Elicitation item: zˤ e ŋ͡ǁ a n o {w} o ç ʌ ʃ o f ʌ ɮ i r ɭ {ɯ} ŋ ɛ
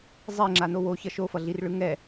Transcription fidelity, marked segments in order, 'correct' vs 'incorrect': correct, correct

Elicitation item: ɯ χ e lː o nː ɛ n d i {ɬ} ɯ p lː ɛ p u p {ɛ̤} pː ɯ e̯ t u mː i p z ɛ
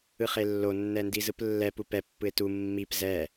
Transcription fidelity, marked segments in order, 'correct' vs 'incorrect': incorrect: z, incorrect: ɛ

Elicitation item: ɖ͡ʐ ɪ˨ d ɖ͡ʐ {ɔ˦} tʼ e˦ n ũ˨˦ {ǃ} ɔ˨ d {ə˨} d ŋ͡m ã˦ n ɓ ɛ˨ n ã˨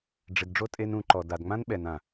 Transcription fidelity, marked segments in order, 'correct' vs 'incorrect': incorrect: o˦, correct, incorrect: a˨

